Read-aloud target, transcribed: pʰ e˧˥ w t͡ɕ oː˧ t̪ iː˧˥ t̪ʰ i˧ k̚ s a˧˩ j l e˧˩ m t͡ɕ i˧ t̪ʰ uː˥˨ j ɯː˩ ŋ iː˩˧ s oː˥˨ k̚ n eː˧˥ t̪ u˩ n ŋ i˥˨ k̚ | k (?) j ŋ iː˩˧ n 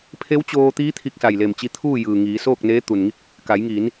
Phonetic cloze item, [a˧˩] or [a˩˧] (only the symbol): a˩˧